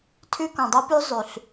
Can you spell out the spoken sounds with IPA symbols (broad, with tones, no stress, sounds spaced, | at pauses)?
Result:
tʰ ʉ˦ k ɔ̃˨ dˤ o˦ p ʉ˦ zˤ ʉ˨ ɬ